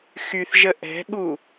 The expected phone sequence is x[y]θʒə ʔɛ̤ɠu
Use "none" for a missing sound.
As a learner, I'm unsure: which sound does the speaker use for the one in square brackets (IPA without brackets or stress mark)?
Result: y